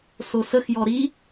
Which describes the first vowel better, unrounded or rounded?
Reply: rounded